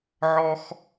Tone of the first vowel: high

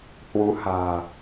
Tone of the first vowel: rising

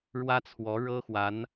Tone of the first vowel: high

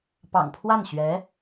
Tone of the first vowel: low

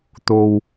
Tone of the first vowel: low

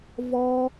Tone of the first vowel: high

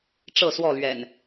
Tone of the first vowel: falling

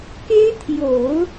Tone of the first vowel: high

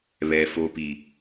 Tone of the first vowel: low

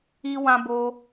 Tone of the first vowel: high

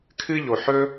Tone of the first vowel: high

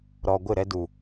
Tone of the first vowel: low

